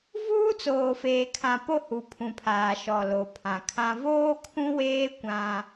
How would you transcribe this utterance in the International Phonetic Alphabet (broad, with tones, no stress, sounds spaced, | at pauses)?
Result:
v uː˦ t͡s oː˨ f eː˨ kʰ ã˨ p o˦ h u˨ pʰ ũ˨ pʰ aː˨ ʃ ɔ˨ l o˨ pʰ ã˨ kʰ ã˦ v oː˦ kʰ ũ˦ w eː˦ kʷ ã˦